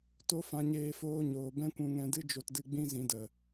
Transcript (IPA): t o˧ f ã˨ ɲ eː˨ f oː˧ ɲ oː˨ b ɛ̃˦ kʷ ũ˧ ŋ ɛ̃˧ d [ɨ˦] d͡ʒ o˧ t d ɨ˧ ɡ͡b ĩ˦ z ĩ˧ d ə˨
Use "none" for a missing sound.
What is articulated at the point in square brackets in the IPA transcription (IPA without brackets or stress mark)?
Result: ɨ˦